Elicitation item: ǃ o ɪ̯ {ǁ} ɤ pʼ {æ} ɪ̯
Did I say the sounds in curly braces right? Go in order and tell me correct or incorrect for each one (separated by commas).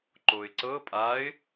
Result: incorrect, incorrect